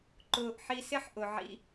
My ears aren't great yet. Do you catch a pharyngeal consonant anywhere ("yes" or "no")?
yes